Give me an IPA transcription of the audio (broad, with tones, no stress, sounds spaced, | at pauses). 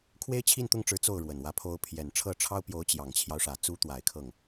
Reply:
kʰ w e˥ ɪ̯ t͡ɕʰ i˥˧ n t̪ ʊ˥˩ ŋ ʈ͡ʂ ɻ̩˧˥ t͡s o˥˩ ʊ̯ ɻ w ə˨˩ n w ä˧˥ pʰ o˧˥ ʊ̯ pʰ j ɛ˨˩ n ʈ͡ʂʰ ɤ˥˩ ʈ͡ʂʰ ɑ˥ ʊ̯ p j o˧˥ ʊ̯ t͡ɕ j ɑ˨˩ ŋ t͡ɕʰ j ɑ˦ ʊ̯ ʂ ä˨˩ t͡s u˧˥ t̪ w a˨˩ ɪ̯ kʰ ɤ˥˩ ŋ